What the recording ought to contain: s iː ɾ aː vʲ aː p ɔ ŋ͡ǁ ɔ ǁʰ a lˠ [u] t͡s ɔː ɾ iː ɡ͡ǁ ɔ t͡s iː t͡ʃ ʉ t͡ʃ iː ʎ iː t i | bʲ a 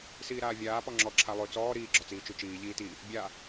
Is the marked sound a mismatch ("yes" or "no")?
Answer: yes